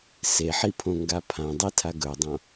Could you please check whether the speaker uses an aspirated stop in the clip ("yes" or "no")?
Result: yes